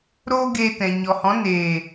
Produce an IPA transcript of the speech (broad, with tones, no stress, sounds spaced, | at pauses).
ɾ oː˦ ɡ eː˧ t ɛ̃˨ ɲ ɔ˨ h ɔ̃˨˦ n eː˨